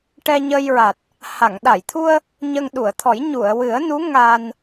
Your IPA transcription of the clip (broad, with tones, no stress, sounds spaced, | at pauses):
ʈ ɛ˧ ɲ ə˧ j ɹ a˨˩ t̚ | h a˨˩˨ ŋ ɗ a˨˩˨ j t̪ʰ u˧ ə̯ | ɲ ə˧ ŋ ɗ u˨˩˨ ə̯ t̪ʰ ɔ˨˩˦ j ɲ u˨˩˨ ə̯ w ɨ˨˩˦ ə̯ n u˧˥ ŋ a˧ n